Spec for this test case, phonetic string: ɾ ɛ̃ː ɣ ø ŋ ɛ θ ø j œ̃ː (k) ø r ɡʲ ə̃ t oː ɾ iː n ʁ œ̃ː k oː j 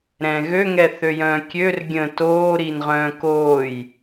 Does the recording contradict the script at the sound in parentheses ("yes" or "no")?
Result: yes